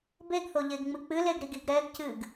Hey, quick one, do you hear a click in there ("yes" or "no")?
no